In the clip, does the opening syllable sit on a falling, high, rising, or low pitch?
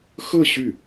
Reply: falling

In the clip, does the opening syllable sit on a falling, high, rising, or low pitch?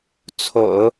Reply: low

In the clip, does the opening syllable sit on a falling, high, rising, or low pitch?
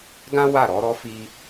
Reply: high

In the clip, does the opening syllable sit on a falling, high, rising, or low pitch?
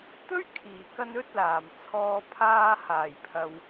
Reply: high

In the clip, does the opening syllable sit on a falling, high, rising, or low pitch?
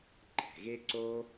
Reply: low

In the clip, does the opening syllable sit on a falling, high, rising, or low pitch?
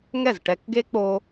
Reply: falling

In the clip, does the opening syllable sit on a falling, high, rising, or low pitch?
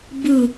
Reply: falling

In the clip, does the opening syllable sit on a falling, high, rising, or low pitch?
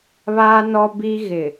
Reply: high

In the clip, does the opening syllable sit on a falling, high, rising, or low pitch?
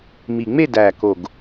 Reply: low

